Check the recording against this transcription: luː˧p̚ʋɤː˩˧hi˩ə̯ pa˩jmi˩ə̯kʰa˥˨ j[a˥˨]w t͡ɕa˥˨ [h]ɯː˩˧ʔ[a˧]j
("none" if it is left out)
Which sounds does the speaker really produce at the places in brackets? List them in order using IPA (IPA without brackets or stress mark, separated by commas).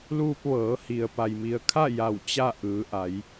a˧˩, ʔ, a˩˧